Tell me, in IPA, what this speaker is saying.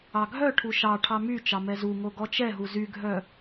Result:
ɑ ɡʱ œ ʈʰ u ʃ ɑ ʈʰ ɑ m y t͡ʃ ɑ m ɛ z u ŋ o ɡ ɔ t͡ʃ ɛ ɦ u z y ɡʱ œ

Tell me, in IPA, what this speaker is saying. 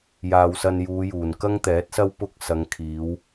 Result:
j aː˨ w s ɐ˧ n j uː˨˧ j uː˨˩ n k ɐ˥ ŋ t̪ ɛː˨˥ t̚ s ɐ˥ w p ʊ˥ k̚ s ɐ˨˧ ŋ kʰ iː˨˧ w

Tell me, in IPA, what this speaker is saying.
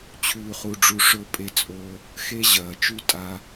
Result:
t͡ɕʰ ʉː˧ χ u˧ ɖ͡ʐ u˧ ʂ ɵ˧ pʼ e˧ t͡sʼ o˧ | x e˧ ʑ ɐː˨ t͡ʃ ʉ˧ tʼ a˦

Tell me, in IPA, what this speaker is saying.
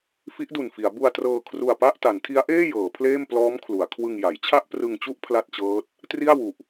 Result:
f i˦˥ ʔ d u˨˩ n f i˩˦ a̯ b u˧ a̯ t r ɤː˧ kʰ r u˧ a̯ p a˥˩ ʔ t a˩˦ n tʰ i˦˥ a̯ ʔ eː˥˩ j ɤː˩˦ pʰ l eː˥˩ m p l ɔː˦˥ m kʰ l u˩˦ a̯ kʰ w ɯ˧ ŋ j a˩˦ j t͡ɕʰ a˥˩ ʔ p r ɯ˧ ŋ t͡ɕ u˥˩ ʔ pʰ l a˥˩ t̚ t͡ɕ ɤː˦˥ t̚ | t r i˥˩ a̯ w u˨˩ ʔ

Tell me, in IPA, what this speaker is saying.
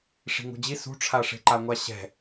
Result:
ʂ i̤ ŋ ṳ d͡ʑ i s ṳ ʈ͡ʂʰ a ʂ e̤ ǃ a ŋʷ a ɕ ɛ̤

